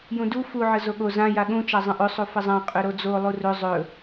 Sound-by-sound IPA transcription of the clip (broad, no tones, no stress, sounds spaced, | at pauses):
j ũ d u f u ʕ ə z o ɠ o z ã j a ɠ ũ t͡ʃ a zˤ ə̃ ʔ ɵ sˤ u f ə zˤ ã qʼ ɵ ɾ o d͡z o lˠ u r ɵ zˤ ɵ